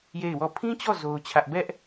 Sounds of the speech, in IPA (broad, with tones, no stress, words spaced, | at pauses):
je˦˨ɪ̯wɔ˦˨ pʰĩ˦t͡ɕɔ˦˨ zo˦ʊ̯t͡ɕʰä˦ʔ bɛ˦ʔ